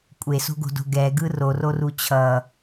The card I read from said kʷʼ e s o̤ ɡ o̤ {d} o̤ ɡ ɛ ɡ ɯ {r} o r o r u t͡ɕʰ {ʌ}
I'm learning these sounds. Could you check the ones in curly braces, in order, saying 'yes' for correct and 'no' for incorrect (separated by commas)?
yes, yes, yes